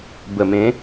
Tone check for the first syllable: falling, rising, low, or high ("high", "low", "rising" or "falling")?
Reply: low